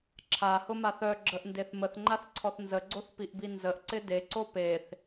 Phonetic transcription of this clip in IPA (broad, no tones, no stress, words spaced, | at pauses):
ǁʰahʊmaθ œɡ͡ǁəʔndeθ məθŋ͡ǃaθǀʰɔθ nzəɡ͡ǀoθpiʔbi nzəʔǀɪ deǀo peθ